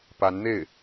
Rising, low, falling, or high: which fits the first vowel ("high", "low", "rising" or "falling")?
rising